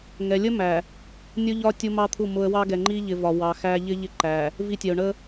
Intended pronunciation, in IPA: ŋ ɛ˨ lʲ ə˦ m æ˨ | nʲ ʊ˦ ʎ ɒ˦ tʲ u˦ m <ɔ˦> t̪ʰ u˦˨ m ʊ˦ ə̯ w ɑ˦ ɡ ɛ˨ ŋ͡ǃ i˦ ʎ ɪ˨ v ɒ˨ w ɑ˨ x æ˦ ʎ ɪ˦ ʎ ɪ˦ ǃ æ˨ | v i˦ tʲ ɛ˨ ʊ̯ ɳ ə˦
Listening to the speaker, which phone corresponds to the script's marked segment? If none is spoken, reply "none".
ɑ˦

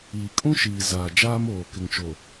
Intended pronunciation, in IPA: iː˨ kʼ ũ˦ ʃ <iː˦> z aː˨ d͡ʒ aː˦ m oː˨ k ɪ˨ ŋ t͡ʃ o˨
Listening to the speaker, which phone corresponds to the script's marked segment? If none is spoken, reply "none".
iː˨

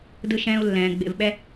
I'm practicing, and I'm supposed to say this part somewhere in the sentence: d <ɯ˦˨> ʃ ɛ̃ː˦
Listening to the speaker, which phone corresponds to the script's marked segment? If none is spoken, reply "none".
ɯ˦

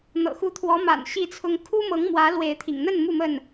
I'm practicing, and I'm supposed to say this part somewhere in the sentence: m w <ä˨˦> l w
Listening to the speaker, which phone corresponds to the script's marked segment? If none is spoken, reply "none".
ä˨˦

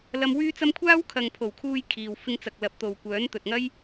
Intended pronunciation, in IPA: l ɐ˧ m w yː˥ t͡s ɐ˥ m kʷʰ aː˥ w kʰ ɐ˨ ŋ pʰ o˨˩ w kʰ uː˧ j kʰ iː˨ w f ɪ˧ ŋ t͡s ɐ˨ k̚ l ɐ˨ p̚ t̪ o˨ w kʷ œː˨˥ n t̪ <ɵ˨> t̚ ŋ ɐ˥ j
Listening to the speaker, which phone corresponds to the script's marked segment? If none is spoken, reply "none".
ɵ˨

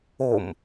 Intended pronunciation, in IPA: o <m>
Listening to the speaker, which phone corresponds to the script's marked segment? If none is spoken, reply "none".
m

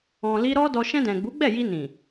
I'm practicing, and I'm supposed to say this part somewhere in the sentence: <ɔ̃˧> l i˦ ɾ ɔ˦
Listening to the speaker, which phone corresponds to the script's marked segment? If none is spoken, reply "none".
ɔ̃˧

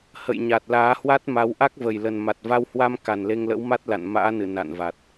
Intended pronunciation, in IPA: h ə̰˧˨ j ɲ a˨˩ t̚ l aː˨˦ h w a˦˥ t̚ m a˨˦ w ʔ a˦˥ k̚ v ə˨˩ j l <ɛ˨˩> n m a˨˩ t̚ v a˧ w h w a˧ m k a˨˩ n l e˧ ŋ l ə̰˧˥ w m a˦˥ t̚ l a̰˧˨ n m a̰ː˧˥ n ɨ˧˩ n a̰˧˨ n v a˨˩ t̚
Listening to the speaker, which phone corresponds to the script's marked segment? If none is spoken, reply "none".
ə˨˩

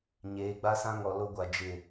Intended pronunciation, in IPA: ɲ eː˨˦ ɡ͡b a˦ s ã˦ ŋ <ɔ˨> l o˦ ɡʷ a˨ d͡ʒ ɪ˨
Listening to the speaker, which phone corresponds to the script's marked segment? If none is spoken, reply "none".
ɔ˨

